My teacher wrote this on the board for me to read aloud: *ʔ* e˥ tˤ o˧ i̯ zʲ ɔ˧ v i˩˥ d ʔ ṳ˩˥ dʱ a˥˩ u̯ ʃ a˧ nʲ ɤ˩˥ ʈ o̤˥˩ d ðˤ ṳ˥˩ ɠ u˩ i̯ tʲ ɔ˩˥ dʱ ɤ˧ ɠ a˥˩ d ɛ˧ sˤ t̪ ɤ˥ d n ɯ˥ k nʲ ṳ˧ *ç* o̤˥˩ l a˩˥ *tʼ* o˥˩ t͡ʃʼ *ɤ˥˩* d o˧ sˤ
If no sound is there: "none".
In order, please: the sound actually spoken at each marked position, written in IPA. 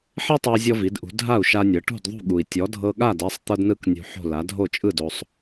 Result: ħ, ħ, dʱ, ɯ˥˩

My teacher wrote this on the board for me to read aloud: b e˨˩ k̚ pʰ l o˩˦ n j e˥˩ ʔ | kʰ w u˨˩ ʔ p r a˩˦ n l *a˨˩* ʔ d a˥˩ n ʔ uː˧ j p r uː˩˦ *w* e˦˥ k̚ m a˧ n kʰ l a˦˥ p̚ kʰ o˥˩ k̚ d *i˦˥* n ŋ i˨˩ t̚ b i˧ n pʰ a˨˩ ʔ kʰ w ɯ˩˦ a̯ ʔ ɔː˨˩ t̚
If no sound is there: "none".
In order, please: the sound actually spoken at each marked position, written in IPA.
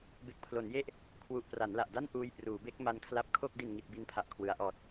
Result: a˨˩, b, i˨˩

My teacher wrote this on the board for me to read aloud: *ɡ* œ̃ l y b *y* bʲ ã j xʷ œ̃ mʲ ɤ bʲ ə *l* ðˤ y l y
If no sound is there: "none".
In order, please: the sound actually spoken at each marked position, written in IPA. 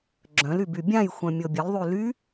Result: ɡ͡ǁ, y, l

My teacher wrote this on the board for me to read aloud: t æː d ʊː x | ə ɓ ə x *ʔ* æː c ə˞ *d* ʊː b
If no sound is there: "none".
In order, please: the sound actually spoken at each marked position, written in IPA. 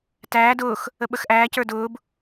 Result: ʔ, d

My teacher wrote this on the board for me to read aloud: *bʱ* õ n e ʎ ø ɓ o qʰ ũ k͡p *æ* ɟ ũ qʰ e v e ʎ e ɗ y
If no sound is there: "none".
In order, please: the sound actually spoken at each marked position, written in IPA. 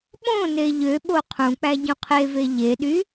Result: ɓ, æ

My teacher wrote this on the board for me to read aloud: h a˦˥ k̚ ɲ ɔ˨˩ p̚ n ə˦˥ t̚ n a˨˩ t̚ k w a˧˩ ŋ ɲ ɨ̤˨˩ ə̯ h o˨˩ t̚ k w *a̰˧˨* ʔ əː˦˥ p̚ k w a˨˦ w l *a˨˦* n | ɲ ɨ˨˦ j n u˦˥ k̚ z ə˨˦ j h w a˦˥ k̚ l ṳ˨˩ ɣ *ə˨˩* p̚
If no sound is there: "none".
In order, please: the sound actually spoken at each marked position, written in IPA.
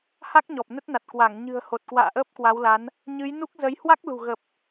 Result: a̰ː˧˨, a˨˦, ə˨˩

